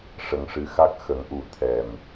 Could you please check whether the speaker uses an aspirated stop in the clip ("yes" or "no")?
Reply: yes